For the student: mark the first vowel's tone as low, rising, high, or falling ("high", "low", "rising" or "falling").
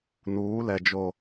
rising